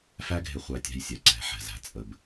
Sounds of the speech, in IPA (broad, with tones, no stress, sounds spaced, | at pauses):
f æ˦ ɡʱ ɪ˧ χʷ æ˧ tʲ æ̤˧ j sʲ ɛ˨ ǀ ɛ̤˨˦ ħ ɛ̤˨ z æ̤˧ t͡sʼ ə˧ b